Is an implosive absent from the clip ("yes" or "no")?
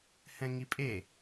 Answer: yes